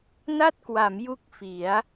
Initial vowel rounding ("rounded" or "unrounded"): unrounded